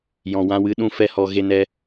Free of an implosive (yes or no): no